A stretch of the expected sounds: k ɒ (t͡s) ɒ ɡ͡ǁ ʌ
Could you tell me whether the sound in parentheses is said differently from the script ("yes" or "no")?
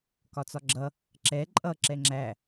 no